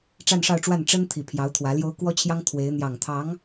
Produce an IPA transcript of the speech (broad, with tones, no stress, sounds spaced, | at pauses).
ʈ͡ʂ a˥˧ n ʂ ɑ˥˧ ʊ̯ ʈ͡ʂ w a˥˩ n ʈ͡ʂ ə˥ n t̪ʰ i˨˩ pʰ j ɑ˧˥ ʊ̯ t̪ʰ w ä˧˥ l j o˥ ʊ̯ k w ɔ˥ t͡ɕʰ j ɑ˥ ŋ t̪ʰ w e˧˥ ɪ̯ n̪ j ɑ˨˩ ŋ t̪ʰ ɑ˧˥ ŋ